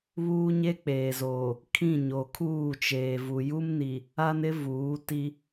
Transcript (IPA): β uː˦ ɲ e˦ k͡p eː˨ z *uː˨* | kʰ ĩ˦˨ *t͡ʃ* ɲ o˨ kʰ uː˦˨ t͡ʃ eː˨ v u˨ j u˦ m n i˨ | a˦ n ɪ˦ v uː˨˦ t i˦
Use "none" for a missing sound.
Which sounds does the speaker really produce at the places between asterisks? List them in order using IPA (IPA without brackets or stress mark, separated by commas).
oː˨, none